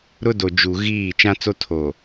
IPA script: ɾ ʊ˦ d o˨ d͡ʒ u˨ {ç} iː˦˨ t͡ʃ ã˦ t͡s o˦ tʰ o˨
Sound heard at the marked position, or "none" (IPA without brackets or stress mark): ɣ